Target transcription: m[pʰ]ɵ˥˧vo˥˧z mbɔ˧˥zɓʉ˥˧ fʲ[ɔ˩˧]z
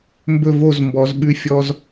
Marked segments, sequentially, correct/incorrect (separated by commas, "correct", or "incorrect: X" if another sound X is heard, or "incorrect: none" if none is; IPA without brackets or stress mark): incorrect: b, incorrect: ɔ˥